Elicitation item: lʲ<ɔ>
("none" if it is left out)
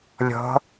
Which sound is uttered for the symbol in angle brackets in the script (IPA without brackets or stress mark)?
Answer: ɔ̤